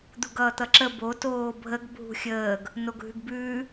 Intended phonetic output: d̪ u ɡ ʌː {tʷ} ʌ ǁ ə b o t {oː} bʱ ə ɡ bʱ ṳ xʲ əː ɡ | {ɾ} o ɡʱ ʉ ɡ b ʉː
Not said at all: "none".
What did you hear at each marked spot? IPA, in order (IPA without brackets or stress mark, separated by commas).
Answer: t̪, oː, n